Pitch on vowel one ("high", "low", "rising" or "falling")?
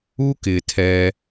high